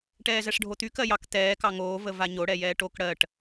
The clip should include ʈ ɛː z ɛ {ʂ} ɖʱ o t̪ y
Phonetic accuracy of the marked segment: correct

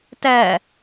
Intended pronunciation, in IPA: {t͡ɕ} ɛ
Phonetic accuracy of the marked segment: incorrect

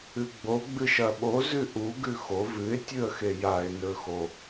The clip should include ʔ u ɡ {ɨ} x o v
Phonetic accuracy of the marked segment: incorrect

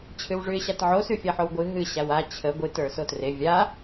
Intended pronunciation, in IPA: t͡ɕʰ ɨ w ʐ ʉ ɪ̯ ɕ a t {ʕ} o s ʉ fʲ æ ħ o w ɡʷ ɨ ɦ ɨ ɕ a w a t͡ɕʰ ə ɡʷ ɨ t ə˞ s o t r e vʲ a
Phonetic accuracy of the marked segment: correct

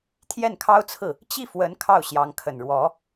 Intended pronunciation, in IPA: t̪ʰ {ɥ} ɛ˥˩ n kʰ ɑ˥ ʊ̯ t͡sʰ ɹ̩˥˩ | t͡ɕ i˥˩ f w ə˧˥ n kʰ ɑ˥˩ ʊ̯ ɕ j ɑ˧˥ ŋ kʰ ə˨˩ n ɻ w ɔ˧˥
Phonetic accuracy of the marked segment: incorrect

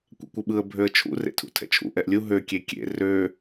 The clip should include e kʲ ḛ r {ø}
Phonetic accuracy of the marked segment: correct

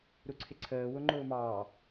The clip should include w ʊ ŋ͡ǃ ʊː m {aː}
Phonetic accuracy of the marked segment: incorrect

